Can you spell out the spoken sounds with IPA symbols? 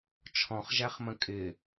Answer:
t͡ʃʰ ɔ̃ χ ʒ æ χ m ə̃ kʼ ɪː

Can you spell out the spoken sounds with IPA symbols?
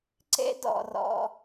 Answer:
ǀ ḛ˥ d ɔ̰˧ r ɔ̰˧

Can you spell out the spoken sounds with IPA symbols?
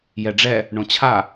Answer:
j ɛ ɖ͡ʐ ɛ | ɳ õ t͡ɕʰ a

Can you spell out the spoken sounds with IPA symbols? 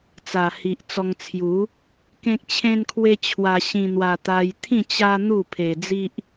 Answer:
t͡s a˨˩ h i˨ ʔ t͡s ɔ˧ ŋ t͡sʰ j u˨˦ | k ẽ˦ k̚ t͡ɕʰ ẽ˧ n kʰ w e˧ t͡ɕʰ w a˧ ɕ ĩ˧ n̪ w a˧ t̪ a˧ j t̪ʰ ĩ˥˧ t͡ɕ a˦ n̪ u˥˧ pʰ e˧ d͡z i˦ ʔ

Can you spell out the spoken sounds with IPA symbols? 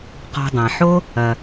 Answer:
q ɔ̤˨ dˤ ã˩ ħ o˦ | ɐ˩

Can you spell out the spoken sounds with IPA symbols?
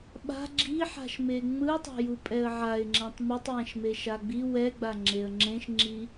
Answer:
ɓ a̤ ɡ͡ǁ i ħ a̤ ʃ m e ŋ͡m ɯ ʊ̯ tˤ a̤ j u pʼ ɛ ə̯ ʕ a ɪ̯ ŋ͡ǁ ɛ̃ tˤ m ɯ tˤ j ɛ̃ ʃ m e ʃ a ɡ͡b i w ɛ ɡ͡b a ŋ͡ǁ e ə̯ ŋ͡ǁ ẽ ʃ ŋ͡ǁ i

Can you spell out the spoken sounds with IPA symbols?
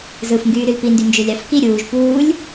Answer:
z ɯ f ŋ ɡ yː ɾ y l p i n d y n d͡ʒ ø lʲ ɑ f k i ɾʲ uː ʒ p uː lʲ

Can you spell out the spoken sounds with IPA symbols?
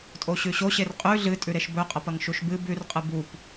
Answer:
tʼ o ɕ ʉ ɕ o ɕ e r qʼ ʉ ɮ ɨ tʼ ʉ ɾ e ʃ b ɵ qʼ ɐ p ɐ ŋ ʃ u ʃ b ɨ b ʉ r qʼ ɨ b u p

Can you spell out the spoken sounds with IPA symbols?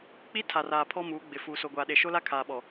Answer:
k͡p i˦ tʰ a˨ r aː˨ pʰ ɔ˦ m uː˨˦ ɡ͡b ɪ˨ f uː˨ s o˨ ɡʷ aː˨ ɗ e˨ ʃ o˦ l a˦ kʰ aː˨ ɓ ɔ˨

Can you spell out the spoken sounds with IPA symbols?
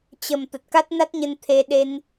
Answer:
t͡ɕ ə˨˩ m t̪ ə˨˩ t̚ k a˦˥ t̚ n a˦˥ t̚ ɲ ə˧ n t̪ʰ e˧ ɗ e˧ n

